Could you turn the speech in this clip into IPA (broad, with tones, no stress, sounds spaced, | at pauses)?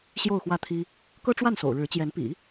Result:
ɕ j o˥˧ ʊ̯ x w ä˥˩ t̪ʰ i˥ | k ɤ˥ ʈ͡ʂ w a˥˩ n s o̰˨˩ ʊ̯ ɻ ɻ̩˧˥ t͡ɕ j ɛ˧˥ n p ḭ˨˩˦